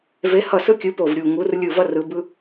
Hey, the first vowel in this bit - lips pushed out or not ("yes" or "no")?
no